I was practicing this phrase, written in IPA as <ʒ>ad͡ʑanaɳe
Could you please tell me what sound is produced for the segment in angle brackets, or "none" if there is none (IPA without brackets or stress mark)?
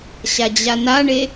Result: ɕ